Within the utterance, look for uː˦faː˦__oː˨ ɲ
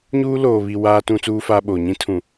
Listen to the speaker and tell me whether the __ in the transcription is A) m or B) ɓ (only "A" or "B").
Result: B